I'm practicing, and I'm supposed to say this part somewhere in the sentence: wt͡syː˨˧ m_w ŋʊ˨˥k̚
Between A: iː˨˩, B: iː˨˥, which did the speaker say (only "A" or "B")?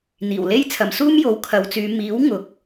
B